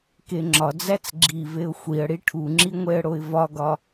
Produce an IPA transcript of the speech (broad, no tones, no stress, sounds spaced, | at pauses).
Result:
k e ŋ͡ǁ ɒ d͡z æ t͡s ɡ͡ǁ i v e ʊ̯ xʷ i ə̯ ɽ i ʈʰ u ŋ͡ǁ i ŋʷ e ə̯ ɽ o ɪ̯ v ɒ ɡ ɒ